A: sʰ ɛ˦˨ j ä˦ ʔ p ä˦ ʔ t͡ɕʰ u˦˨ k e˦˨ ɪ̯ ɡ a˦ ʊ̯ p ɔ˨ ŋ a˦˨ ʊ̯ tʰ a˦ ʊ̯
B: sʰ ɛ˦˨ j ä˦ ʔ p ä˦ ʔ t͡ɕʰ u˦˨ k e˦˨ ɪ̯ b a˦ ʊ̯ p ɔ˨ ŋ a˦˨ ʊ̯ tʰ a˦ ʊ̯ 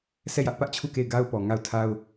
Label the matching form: A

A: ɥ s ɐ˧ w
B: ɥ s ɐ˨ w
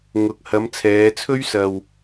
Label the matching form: A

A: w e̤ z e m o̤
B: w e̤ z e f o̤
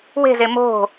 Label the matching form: A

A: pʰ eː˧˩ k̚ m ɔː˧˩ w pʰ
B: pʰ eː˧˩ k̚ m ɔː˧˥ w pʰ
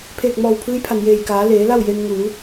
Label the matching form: A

